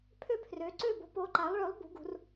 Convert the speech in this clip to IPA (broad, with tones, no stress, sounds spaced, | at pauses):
pʰ ø˥˨ pʰ r ø˨˥ ǀ ø˥˨ b o̤˨˥ p o˨˥ ǃ a˨˥ lˠ ɭ ø˨˥ lˠ b ṳ˨˥ ɡ ṳ˨˥ r